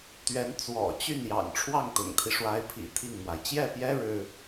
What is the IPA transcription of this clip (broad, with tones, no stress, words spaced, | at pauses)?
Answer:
t̪ɥɛ˧˥n t͡swɔ̰˨˩t͡ɕy˥˩njɑ̰˨˩ŋ ʈ͡ʂʰwɑ˥˩ŋt̪ʊ̰˨˩ŋt̪ʰi˦ ʂwa˧˥ɪ̯pʰḭ˨˩ t̪ʰi˥˩ŋmwa˩ɪ̯ t͡ɕjɛ˥˩pjɛ˥ ɻɻ̩˥